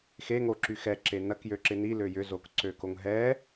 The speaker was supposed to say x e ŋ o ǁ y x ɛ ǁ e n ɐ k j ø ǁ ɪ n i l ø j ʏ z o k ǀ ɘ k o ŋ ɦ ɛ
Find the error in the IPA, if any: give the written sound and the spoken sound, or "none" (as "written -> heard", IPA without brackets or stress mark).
ɘ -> ø